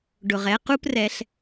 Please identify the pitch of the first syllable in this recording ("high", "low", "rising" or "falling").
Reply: low